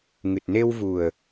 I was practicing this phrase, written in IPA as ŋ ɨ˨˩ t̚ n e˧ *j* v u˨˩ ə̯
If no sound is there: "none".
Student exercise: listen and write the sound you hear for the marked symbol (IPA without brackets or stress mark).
w